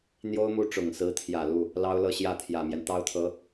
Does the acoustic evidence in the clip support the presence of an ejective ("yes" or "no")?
no